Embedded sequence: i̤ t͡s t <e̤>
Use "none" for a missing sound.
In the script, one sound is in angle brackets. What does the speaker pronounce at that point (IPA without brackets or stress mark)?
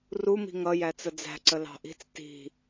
i̤